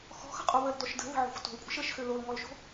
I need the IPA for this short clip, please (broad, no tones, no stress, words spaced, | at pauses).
xɔ̤xə̤qʼo βəldɔʃ də̤ðə̤ʕo̤xʷ to̤lkʷʼə̤ʃ əʃxø lolŋɔlʃo̤